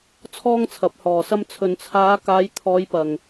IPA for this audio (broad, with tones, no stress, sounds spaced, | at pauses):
t͡sʰ ɔː˥ ŋ t͡sʰ ɐ˨˥ p̚ h ɔː˨ s ɐ˥ m t͡sʰ ɵ˨ n t͡sʰ aː˨˧ k aː˨˧ j t̪ʰ ɔː˨˧ j p ɐ˨ ŋ